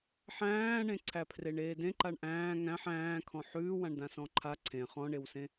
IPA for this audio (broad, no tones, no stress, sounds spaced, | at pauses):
ħ æ̃ː ɳ ẽ ǀʰ æ pʰ r e ɳ eː d ẽ ǃ a ɳ ʔ æ̃ː ŋ æ̃ ħ æ̃ː kʰ ɔ̃ ħ ʉː w ã ɳ d ã s ɔ̃ ǃʰ a ǀʰ ẽ χ ɔ̃ ɳ e w s ẽ